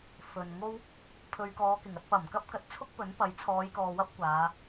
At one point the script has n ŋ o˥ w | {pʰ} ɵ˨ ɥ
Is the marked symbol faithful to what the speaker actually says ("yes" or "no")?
yes